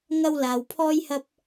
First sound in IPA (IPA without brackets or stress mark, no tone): ŋ